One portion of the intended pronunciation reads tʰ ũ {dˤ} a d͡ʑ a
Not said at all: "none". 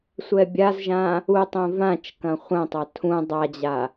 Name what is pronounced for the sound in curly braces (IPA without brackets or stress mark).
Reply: dˤ